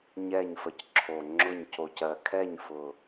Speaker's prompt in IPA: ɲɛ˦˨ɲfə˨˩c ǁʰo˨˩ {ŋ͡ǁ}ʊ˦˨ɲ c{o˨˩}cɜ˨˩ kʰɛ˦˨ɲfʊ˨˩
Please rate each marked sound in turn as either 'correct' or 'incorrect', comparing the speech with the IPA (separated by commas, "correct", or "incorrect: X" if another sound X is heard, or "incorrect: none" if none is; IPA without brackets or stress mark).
correct, correct